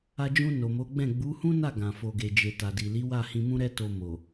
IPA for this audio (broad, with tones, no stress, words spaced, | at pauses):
a˧d͡ʒũ˧ no˨mo˨˦ɡ͡bɛ̃˦˨ ɡ͡bu˨˦hũ˦na˦˨ ɡã˨ fo˨ɡe˨d͡ʒe˨ ta˨di˨li˨˦ wa˦˨hĩ˧mũ˦ɾɛ˦ to˧mo˨